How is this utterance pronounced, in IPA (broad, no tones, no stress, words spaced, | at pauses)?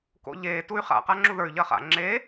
ko̰ʎe tuy̯χa̰ qaŋ͡ǁuðə˞y̯ ʎɐχa̰ ŋ͡ǁe